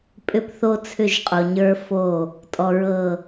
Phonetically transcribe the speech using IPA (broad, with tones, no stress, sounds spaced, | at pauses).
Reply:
pʼ ʏ˦ p θ o˦ t͡sʰ ʏ˦˨ ʒ qʼ o˨ ɲ ə˞˦ f o˦˨ | tʼ ɔ˨ ɹ ɤ˨